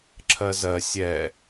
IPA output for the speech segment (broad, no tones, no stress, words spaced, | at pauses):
ǁʰɜzɜ sʲɛ